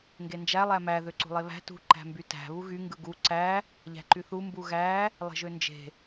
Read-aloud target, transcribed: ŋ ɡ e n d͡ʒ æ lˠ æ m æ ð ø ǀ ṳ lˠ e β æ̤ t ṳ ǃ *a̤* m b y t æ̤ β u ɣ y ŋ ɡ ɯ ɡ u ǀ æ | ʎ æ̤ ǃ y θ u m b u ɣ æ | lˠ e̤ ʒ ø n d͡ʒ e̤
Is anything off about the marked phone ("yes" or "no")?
yes